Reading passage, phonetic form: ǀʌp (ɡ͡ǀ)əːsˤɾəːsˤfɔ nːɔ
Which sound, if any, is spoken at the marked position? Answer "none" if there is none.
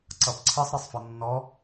ǀʰ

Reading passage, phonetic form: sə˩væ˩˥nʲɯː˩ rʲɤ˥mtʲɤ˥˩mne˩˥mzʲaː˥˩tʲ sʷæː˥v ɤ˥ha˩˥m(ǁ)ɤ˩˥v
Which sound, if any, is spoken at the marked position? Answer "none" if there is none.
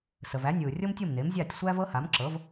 ǁ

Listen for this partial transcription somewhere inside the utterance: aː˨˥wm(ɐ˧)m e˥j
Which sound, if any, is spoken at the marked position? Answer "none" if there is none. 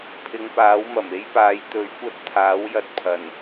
ɐ˨˩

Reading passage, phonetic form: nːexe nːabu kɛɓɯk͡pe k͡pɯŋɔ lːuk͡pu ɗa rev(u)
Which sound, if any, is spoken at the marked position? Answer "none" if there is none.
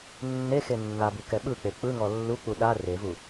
u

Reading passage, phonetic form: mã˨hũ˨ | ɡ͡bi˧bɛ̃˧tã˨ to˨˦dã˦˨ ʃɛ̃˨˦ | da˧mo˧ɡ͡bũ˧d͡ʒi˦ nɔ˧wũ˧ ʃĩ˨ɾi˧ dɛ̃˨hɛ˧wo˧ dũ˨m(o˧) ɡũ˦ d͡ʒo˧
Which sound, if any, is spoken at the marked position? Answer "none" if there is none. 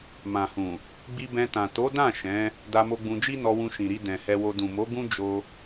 o˨˦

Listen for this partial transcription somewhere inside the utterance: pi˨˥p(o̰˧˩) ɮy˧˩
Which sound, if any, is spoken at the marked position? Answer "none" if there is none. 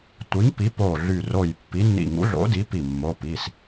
o˧˩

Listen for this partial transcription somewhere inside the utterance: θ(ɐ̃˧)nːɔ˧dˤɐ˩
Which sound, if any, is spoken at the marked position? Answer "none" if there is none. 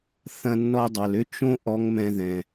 ɐ̃˧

